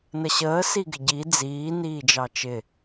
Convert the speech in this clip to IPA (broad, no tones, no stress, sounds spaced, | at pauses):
n ə ɕ əː s i ɡ ɪ ɟ i d͡z iː n iː d͡ʒ ɑ t͡ʃ ɪ